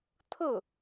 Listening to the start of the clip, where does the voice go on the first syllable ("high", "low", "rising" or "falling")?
falling